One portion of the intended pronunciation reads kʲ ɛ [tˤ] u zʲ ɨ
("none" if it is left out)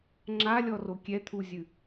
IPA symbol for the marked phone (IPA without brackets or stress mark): t̪ʰ